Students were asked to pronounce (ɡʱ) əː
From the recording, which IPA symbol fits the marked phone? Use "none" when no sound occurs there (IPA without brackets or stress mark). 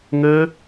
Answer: ŋ